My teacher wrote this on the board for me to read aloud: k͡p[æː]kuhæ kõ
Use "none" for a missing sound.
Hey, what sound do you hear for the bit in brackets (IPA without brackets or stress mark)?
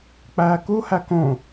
æː